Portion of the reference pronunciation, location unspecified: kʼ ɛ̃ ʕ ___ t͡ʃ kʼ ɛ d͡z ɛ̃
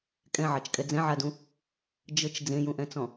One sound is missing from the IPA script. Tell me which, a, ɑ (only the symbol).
ɑ